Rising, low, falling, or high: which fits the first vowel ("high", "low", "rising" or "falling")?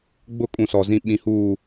falling